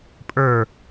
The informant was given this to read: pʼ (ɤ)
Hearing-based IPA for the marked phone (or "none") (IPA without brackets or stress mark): ə˞